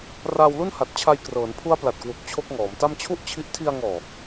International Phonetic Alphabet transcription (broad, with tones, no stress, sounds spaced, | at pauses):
r aː˧ w l u˥˩ n h a˨˩ t̚ t͡ɕʰ a˧ j k r ɤː˩˦ n pʰ u˦˥ a̯ p l a˨˩ t̚ k w u˨˩ k̚ t͡ɕʰ o˦˥ k̚ ŋ ɔː˩˦ m t a˥˩ m t͡ɕʰ u˥˩ ʔ t͡ɕʰ i˦˥ ʔ tʰ i˧ a̯ ŋ ɔː˨˩